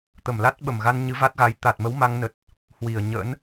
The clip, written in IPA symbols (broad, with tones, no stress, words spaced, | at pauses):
t̪ə˧˩mla˦˥t̚ɓə˧˩mɣa˧n ɲɨ˨˦va˦˥t̚ɣa˨˦j t̪a˨˩t̚mə˨˦w ma˧ŋnə˨˩t̚ | hwi˧˩ə̯ ɲə̰˧˥n